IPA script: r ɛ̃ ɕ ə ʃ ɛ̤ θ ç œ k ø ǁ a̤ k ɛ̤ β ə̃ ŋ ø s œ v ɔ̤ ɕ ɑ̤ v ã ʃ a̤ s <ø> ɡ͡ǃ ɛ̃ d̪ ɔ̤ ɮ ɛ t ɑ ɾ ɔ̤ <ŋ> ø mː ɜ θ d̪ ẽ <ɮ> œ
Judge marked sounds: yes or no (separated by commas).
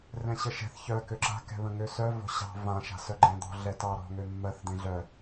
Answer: no, yes, yes